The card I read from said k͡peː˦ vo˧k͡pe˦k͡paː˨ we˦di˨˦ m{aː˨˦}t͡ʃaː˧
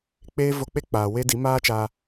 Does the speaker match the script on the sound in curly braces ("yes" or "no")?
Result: no